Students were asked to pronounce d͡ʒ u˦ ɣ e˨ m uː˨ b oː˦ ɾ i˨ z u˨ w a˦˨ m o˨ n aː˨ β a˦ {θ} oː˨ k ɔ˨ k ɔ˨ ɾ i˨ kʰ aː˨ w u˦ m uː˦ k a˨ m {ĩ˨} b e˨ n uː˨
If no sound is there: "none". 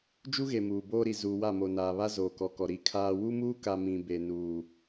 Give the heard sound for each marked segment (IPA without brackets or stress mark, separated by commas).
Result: z, ĩ˨